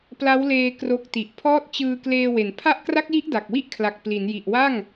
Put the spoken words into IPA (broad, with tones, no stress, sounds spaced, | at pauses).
p l a˦˥ w l eː˧ k r o˦˥ k̚ t i˨˩ ʔ pʰ ɔː˥˩ t̚ t͡ɕ ɯː˧ k l eː˧ w e˩˦ n pʰ a˦˥ ʔ k r a˦˥ k̚ j i˦˥ ʔ d a˨˩ k̚ w i˥˩ ʔ kʰ l a˨˩ k̚ p l i˩˦ n j i˨˩ ʔ w a˥˩ ŋ